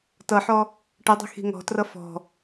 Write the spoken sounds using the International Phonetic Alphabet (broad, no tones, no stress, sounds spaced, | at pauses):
t ʌ ħ ɔ | ʈ ə dˤ i̤ x i̤ ŋ ɔ̤ t r ʌ f ɔ̤